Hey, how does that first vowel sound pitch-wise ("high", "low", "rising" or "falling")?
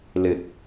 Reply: low